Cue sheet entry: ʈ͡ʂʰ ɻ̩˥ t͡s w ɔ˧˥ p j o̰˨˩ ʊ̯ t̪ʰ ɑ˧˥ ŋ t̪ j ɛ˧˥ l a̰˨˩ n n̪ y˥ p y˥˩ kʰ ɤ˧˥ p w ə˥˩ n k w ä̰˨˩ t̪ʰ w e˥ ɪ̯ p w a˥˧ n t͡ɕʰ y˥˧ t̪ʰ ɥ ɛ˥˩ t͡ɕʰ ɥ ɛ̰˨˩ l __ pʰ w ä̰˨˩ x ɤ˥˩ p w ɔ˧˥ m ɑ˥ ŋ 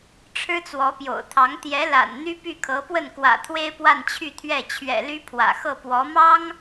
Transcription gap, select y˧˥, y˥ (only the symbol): y˥